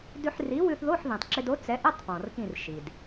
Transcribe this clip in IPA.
d ʉ˧ ħ r i˨˥ w ʉ˧ θ ð o˧˥˧ ħ ð ĩ˩ tˤ ǁ ɪ˧ d o˨˥ t͡s ɛ˨˥ ʔ ə˧˥˧ tˤ p ɔ̃˩ r k ĩ˧˩ r ʃ i˩ d

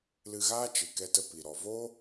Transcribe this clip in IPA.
l ɨ˧ ɣ aː˦ t͡ʃ ɨ˨ k ɛ˧ t ə˧ p i˨ ɾ ɔ˨ v o˦

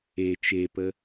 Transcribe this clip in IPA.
e t͡ʃ e p ə

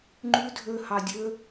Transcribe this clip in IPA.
ŋ͡ǃ ʉ dʱ ø h ɑ dʲ ø

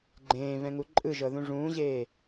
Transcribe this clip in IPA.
ɡ͡ǃ ẽː v ɛ̃ ŋ u ǃʼ ɯ ʒ ɤ ð ũ ʐ ũː ʑ eː

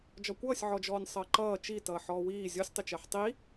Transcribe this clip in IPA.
d͡ʒ ɒ kʷ ʌː sʲ ʕ ɔ d͡ʒ ɔː nʲ sˤ ʌː ǃ ʌː t͡ʃ i t ʌː ħ ɔː w iː zʲ ɔ sʲ tˤ ɪ t͡ʃ ɜ ħ tˤ i

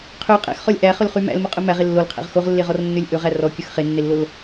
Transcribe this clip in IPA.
qʰ ø qʼ æ̰ x χ ɔ lʲ ʔ æ χ ɵ l χ y m æ̰ l m ɵ qʼ ɵ m æ ʁ e lː o l qʰ æ̰ ʁ x o ʁ lː e ʁ ɔ r nː ø lʲ ʔ ɵ ʁ æ r ɔ kʲ ɵ x χ e nː e lː o l

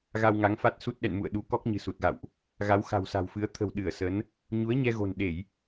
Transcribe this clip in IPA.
ɣ a˧ w ŋ a˨˦ ŋ f a˦˥ t̚ s u˦˥ t̚ ɗ ɛ̰˧˨ n m ṵ˧˨ ə̯ ɗ u˨˦ k ɔ˦˥ k̚ ɲ ɨ̤˨˩ s u˨˩ t̚ ɣ a̰˧˨ w ʔ | ɣ a˨˦ w x a̤˨˩ w s a̤˨˩ w f ɨ˨˦ ə̯ t̪ʰ ə̤˨˩ w ɗ ɨ˧˩ ə̯ s ə˨˦ n | ɲ u˨˦ ə̯ ɲ ɛ˧ ɣ o̤˨˩ n ɗ e˧˩˨ j

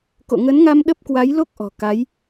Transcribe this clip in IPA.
k o̰˧˨ ŋ ə˨˦ n ŋ a˧ m ɗ ə˦˥ p̚ k w a˨˦ j l o˦˥ k̚ ʔ ɔ̤˨˩ k a˨˦ j

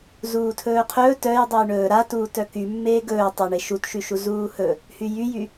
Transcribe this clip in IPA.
z uː tʰ ɵː qʰ ɵː t œ j dˤ œ j ɳ ɵː ɾ a t uː t œ k y mː eː ɡ ɵː tˤ œ ɳ e ʃ u t ʃ y ʃ u z uː h ɵ | h y j y j y

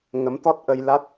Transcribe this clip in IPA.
ŋ ə˨˦ m t̪ ɔ˦˥ t̚ ʔ ə˧ j l a˦˥ t̚

